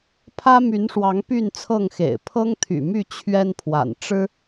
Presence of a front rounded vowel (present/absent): present